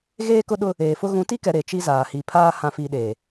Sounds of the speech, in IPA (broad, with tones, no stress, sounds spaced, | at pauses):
ɣ eː˦ k ʊ˦ ɗ ʊ˦ | eː˨ f ʊ˦ ɣ ũ˨˦ t i˦ k ɛ˨ ɾ e˨ t͡ʃ i˦ z aː˨ h i˨ pʰ aː˦ h ã˨ f i˨ ɗ eː˨